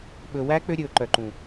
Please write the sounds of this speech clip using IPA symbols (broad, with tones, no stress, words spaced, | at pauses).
ɓɵ˨wæ˦ k͡pø˦ɾʲɵː˨ǃœ˨ǃũ˨